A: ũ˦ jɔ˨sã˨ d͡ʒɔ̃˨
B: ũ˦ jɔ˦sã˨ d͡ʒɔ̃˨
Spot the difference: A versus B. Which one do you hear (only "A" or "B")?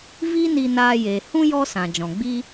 B